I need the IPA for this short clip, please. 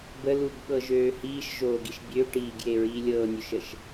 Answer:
bə luɡɓɤʒøːhiːʃ ʒoːɡiʃbʲø ʈiːɡje ɹiːlʲɤːnʲøʃəʃ

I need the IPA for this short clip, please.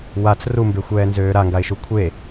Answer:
wat͡s rumbexʷɛːnzøː ɾaŋɡaɪ̯ʃu kʷʰe

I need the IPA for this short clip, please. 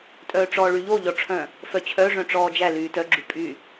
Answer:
tʼœːʈ͡ʂɔːɭyʎo ʎɔʈ͡ʂʰœ̃ | fœt͡ɕʰœ ʐœ̃ʈ͡ʂɔːd͡ʒæ lyːtœ ɡ͡ǁypʼy

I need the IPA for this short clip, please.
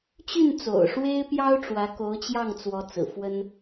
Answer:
t͡ɕy˥˩n t͡so̰˨˩ʊ̯ʂwe˥ɪ̯pjɑ˥ʊ̯ ʈ͡ʂwä˧˥ko˧˥ʊ̯t͡ɕjɑ˥˩ŋt͡swɔ˧˥ t͡sɹ̩˨˩fwə˥n

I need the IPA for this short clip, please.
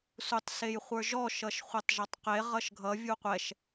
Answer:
sutˤsejχʷə˞ʒɔ ʃʌʃχʷɛtˤʒɒtˤqe ʁʌʃɡʱʌ vʲuqʷɛʃ

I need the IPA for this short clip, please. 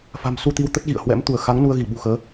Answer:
fa̤˨˩msu˧t̪i˧w t̪ə˦˥t̚ɣḭ˧˨ə̯ hwɛ̰˧˥m t̪u˧˩ə̯xa˨˦ŋ nu˧ə̯ɣi˧˩ɓṳ˨˩xəː˨˦

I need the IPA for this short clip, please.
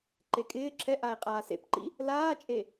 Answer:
ǃekʼɪː ǁʰɛ ʔae̯qʼaːsḛpǃḭ | laːt͡ʃʼe

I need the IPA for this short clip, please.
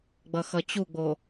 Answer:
ɡ͡bʌxʌt͡ɕuɡ͡bo

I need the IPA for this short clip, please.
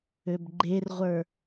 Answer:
øbɡ͡ǃerʁʷə˞

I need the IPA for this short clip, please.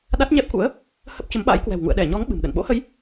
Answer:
ɗa˦˥t̚ɲɛ˦˥p̚kṵ˧˥ə̯ | hə˦˥p̚t͡ɕə˨˦mɓa̰ː˧˥jkwɛ̤˨˩w ŋṵ˧˨ə̯ɗɛ˧˩ɲɔ˨˦ŋ ɓɨ̤˨˩mɗə̰˧˨n ɓo̰˧˥hə˨˦j

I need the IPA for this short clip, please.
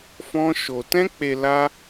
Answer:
fɔ̃˦ʃo˧ tɛ̃˦k͡pe˧ la˦

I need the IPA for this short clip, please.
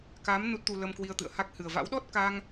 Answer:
ka˨˦m nu˦˥t̚t̪u˧ lə˧mkwi˧ə̯t̪ɨ̰˧˨ə̯ha˦˥k̚ hɨ˨˩ə̯va̰˧˥wɗɔ˦˥t̚ ka˧ŋ

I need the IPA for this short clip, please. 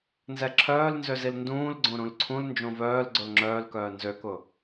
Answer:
nzɛǁʰœːlnzøzil ndũːlɡ͡ǀõ ɾũlǀʰũl nd͡ʒõvœːl ɡ͡ǀolŋ͡ǁœːlkœː nzøkʊ

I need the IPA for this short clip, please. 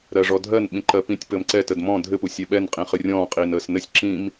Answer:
ɾɜʐɔdʱɜn ɓĩǃɜpĩtʲ pəmǀɛ tədmɔ̃ dʱɘ pusʲɛɓɛn qʼĩχɨrʲɔ̃ː qʼiːnəːsnɘsʲ ǁĩm

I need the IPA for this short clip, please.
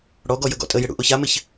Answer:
ɽɔɡɔ jəɡɔ̰tʼəjɪ ɽṵʔoçamɪç

